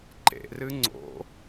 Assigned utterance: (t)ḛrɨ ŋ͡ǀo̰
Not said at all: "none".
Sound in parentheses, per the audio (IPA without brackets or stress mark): ǃ